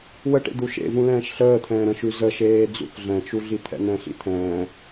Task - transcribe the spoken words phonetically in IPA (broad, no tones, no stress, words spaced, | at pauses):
wəʈḛ d̪uʃḛvũ lɛ̃ːʃɬəːt̪ʰɛ̃ː ɾə̃ʃʉ zəʃeː d͡zṵθɮɛ̃t͡ʃu ɮit̪ʰɛ̰nɛ̃ɬḭ t̪ʰɛ̃ː